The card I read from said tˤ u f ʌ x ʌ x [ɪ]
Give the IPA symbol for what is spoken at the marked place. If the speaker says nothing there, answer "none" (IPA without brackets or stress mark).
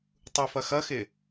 ɪ